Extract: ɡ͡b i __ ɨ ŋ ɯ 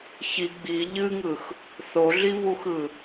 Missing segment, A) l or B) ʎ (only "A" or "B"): B